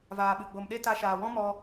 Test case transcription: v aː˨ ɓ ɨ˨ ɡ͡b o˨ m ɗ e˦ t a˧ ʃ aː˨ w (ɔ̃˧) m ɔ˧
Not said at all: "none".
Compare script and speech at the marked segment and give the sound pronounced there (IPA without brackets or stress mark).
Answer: ɔ̃˦